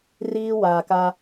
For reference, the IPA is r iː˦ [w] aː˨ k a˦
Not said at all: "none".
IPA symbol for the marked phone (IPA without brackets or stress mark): w